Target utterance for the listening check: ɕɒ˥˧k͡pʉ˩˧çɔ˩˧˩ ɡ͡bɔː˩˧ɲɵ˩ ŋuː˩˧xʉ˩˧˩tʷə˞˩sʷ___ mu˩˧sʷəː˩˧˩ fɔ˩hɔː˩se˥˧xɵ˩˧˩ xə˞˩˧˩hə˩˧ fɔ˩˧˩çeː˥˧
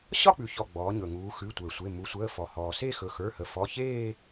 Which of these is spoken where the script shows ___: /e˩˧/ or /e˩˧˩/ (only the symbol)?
e˩˧˩